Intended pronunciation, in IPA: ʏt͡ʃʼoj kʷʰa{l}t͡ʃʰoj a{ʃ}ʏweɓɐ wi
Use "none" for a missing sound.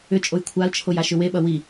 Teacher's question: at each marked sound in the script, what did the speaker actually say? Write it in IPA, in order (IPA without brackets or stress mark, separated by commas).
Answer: l, ʃ